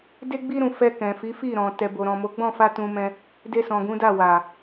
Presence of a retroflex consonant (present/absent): absent